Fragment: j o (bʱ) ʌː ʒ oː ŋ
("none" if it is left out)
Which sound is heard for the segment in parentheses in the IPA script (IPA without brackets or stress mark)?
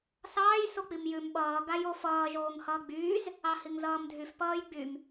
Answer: f